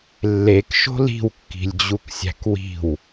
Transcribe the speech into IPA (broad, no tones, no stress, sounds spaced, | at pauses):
lː e k ʃ o̤ l i̤ w kː i̤ lʲ d͡ʑ u k sʲ æ̤ k w i̤ w